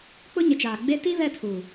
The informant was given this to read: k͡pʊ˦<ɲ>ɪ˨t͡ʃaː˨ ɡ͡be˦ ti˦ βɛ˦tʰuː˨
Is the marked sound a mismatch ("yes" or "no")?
no